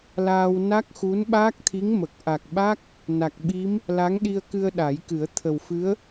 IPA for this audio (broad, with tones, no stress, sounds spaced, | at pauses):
l aː˧ w n a˦˥ k̚ x u˧˥ n ɓ aː˦˥ k̚ t̪ʰ i˧˥ ŋ m ə˨˩ k̚ ʔ a˨˩ k̚ ɓ a˦˥ k̚ | n a˨˩ k̚ ɓ i˧˥ m | l a˧˥ ŋ ɗ i˧ ə̯ k ɨ˧ ə̯ ɗ a˨˩˦ j k ɨ˨˩˦ ə̯ t̪ʰ ə˨˩ w f ɨ˧˥ ə̯